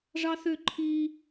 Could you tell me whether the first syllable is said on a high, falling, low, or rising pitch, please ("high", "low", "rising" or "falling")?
high